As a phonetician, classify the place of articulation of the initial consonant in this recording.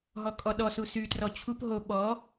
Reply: glottal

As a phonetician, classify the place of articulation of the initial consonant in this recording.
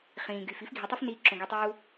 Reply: uvular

